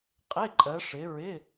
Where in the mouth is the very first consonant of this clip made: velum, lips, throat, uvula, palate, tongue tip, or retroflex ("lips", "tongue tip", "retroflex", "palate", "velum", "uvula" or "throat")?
uvula